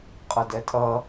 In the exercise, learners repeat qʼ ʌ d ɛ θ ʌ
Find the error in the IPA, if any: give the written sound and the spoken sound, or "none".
θ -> tʼ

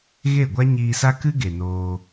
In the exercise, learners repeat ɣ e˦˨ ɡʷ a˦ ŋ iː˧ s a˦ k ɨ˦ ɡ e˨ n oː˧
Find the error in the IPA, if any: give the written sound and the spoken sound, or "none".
ŋ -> ɲ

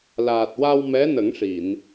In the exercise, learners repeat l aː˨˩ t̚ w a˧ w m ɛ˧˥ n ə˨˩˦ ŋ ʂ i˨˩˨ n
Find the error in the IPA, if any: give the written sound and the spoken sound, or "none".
none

